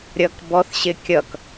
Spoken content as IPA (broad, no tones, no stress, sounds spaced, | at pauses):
ɾʲ ʌ k b ɔ θ ɕ ɪ kʲ ʌ k